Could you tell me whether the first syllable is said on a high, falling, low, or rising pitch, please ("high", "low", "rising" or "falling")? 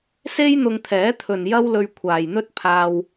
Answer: high